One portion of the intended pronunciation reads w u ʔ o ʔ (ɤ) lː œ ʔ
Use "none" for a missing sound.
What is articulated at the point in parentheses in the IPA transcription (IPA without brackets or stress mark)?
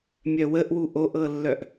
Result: ɤ